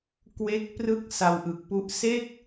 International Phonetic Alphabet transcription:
k w e˦˥ k̚ p r ɯ˥˩ k̚ s a˧ w ʔ ɯ˨˩ k̚ p u˦˥ ʔ s e˥˩ k̚

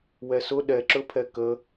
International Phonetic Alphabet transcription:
w ɛ s ʊ ɗ ɛ ǁ ɵ pʰ ɛ k ə

